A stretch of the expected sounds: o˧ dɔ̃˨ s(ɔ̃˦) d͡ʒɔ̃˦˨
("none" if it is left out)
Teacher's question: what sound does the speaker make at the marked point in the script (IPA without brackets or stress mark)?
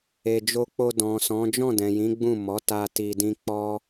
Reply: ɔ̃˨˦